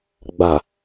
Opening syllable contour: low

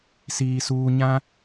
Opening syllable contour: low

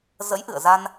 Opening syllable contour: rising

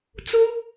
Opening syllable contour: high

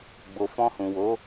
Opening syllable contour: low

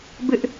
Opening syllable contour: high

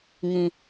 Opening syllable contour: low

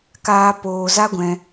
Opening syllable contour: high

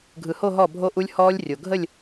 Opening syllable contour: low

